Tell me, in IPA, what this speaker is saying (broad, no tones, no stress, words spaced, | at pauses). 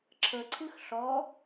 ǁʰəǀʰɨx ɬɔ